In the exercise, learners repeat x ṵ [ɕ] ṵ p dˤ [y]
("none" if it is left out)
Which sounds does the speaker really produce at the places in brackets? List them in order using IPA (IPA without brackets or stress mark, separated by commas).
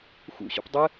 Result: ɕ, ɪ